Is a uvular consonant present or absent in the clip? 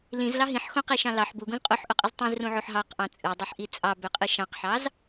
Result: present